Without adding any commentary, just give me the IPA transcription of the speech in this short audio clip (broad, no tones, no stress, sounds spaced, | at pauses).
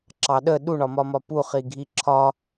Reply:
ǁ ɑ ɗ ə ɗ u ɳ ɒ m ɒ m ɒ p u χ i ɡʱ i ǁʰ ɒ